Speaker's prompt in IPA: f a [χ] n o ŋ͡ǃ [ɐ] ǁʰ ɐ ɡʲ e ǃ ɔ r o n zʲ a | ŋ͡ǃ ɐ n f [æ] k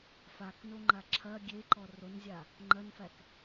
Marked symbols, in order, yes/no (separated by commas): no, no, yes